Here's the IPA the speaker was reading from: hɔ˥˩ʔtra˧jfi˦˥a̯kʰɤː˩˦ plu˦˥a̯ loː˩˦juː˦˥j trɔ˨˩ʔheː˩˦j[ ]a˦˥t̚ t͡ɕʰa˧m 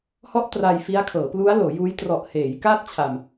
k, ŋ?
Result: k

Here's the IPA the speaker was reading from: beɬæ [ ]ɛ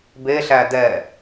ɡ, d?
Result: d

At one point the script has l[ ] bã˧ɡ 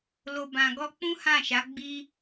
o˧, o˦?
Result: o˧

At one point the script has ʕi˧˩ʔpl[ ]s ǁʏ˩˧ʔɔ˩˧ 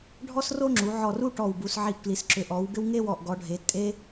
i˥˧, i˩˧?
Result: i˩˧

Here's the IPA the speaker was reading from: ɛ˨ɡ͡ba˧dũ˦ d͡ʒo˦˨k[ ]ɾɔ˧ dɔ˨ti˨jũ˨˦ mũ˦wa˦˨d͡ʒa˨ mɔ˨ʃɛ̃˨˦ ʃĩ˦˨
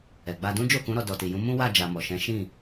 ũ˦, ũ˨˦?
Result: ũ˨˦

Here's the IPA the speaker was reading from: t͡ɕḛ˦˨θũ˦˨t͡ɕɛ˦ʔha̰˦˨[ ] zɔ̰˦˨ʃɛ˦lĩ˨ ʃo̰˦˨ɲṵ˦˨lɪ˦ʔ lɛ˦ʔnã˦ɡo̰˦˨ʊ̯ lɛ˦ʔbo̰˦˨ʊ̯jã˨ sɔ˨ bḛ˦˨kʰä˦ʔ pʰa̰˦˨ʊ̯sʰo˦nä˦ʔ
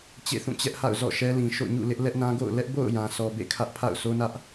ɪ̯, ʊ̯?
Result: ʊ̯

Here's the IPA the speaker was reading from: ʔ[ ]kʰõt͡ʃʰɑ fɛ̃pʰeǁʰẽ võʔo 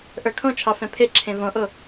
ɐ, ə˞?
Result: ə˞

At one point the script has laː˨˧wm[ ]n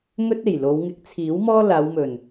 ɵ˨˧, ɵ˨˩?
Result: ɵ˨˩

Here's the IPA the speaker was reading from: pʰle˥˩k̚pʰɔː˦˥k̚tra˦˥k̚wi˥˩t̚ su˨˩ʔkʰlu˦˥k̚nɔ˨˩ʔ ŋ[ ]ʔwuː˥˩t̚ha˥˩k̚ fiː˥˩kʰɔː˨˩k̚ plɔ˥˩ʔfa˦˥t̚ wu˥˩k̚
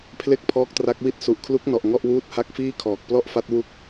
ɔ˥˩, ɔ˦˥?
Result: ɔ˥˩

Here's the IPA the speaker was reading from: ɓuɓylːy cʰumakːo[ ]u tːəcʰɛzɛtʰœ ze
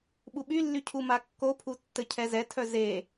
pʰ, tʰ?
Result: pʰ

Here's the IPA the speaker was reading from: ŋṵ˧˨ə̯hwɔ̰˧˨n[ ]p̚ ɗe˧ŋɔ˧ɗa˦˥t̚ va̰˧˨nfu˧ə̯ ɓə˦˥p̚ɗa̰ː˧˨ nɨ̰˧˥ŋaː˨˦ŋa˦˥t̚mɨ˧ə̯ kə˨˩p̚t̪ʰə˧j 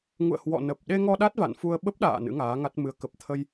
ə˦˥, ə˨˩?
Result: ə˨˩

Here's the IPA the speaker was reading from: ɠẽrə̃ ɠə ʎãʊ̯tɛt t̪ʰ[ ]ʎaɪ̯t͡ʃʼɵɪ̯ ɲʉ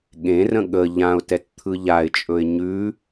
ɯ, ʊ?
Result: ɯ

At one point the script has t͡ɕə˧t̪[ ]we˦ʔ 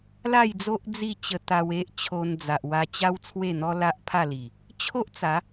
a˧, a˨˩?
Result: a˧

